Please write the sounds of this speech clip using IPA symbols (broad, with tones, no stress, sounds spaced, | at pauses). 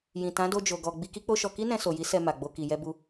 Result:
j ĩ˨ t ã˨˦ d o˧ d͡ʒ o˨ ɡ ɔ˨ ɡ͡b i˧ k i˦ k͡p o˦ ʃ ɔ˧ k i˦ n ɛ̃˧ s o˨ j i˨˦ s ɛ˧ m a˨ ɡ͡b o˧ k i˨ j ɛ˧ b u˧